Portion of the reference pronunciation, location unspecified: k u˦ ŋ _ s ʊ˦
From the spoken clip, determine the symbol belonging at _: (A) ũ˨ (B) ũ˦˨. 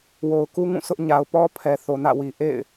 B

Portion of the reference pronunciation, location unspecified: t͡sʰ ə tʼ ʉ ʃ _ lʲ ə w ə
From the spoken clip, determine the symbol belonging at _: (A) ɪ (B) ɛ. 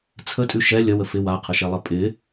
B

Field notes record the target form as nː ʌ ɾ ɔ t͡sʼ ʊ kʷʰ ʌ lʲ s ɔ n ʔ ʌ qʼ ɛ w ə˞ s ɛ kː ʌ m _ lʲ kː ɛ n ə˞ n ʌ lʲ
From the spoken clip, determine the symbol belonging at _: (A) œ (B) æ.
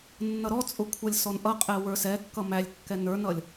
B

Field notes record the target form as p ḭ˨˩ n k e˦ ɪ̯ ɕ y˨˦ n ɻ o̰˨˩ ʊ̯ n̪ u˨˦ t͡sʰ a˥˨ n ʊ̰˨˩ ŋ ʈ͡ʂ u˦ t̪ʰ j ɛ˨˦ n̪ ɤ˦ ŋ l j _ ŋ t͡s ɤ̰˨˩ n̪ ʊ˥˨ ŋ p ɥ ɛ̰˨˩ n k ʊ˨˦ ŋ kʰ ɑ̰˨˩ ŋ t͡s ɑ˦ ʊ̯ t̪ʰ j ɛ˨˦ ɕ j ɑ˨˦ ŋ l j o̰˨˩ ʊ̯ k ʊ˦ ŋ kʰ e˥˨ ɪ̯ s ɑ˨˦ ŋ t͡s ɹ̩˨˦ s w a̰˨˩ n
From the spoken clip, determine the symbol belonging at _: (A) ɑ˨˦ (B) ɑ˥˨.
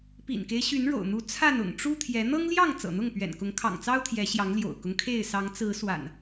B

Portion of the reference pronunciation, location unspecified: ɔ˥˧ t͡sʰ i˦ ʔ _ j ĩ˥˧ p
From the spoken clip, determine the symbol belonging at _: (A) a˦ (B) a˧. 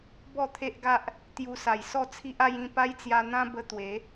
A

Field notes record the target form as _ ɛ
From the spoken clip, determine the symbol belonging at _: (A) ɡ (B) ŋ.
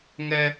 B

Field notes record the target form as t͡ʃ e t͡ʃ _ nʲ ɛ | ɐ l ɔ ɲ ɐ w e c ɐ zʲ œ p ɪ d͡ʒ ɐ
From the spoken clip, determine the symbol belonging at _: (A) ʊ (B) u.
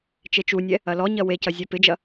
B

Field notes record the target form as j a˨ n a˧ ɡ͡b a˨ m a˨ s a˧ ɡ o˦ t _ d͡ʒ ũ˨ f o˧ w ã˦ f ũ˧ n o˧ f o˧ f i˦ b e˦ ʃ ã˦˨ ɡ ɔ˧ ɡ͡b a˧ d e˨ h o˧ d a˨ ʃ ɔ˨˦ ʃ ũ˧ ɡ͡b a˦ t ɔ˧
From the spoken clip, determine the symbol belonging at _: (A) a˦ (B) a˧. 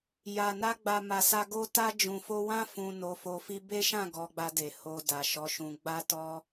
B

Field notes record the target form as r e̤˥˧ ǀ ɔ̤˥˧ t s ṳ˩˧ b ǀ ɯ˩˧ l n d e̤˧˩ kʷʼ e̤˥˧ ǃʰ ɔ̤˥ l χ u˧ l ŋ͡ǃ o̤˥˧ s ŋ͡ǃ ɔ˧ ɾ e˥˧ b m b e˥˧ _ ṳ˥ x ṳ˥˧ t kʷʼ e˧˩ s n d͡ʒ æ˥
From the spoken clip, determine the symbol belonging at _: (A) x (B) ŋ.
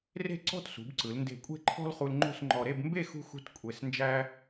A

